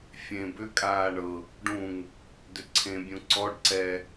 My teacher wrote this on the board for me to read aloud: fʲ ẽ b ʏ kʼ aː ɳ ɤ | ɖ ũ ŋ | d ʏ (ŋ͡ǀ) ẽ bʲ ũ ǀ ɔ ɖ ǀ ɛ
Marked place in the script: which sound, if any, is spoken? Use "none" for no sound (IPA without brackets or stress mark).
ǀʰ